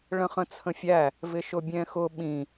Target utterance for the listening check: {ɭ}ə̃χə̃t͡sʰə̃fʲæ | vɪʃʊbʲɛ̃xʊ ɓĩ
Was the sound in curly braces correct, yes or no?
yes